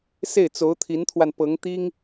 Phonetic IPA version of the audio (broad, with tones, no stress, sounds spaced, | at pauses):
s e˥˩ ɪ̯ t͡s o˧˥ ʊ̯ t̪ʰ i˧˥ n t̪ʰ w a˧ n p ɤ˧˥ ŋ t̪ i˥ ŋ